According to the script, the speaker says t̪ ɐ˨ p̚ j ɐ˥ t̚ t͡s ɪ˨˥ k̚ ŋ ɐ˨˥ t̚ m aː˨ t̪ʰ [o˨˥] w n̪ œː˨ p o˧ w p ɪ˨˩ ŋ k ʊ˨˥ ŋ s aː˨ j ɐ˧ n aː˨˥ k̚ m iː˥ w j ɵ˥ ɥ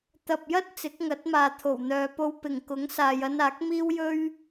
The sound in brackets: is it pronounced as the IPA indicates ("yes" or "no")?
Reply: no